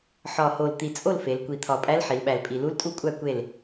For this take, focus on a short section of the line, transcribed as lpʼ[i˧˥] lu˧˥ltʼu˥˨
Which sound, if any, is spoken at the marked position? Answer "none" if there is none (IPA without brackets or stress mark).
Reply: i˨˩